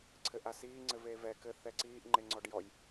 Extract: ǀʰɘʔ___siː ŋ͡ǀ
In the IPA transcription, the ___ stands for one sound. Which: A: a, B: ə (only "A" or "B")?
A